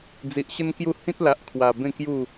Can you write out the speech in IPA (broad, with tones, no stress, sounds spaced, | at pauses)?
d͡z i˨ ʔ ɕ ə˦ n k j u˥˧ h ĩ˦ t̚ l a˨ ʔ kʰ w a˨˩ b ẽ˥˧ k j u˥˧